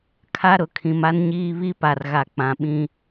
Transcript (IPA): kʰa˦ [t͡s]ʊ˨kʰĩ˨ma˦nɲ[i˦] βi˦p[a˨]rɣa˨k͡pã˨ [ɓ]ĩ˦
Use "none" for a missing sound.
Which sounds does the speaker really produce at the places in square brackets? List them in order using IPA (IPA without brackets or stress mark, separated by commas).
ɾ, iː˦, a˨, ɓ